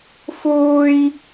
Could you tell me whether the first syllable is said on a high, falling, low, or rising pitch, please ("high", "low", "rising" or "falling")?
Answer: high